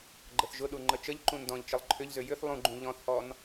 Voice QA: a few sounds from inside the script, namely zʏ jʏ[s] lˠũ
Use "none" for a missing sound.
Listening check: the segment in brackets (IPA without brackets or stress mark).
θ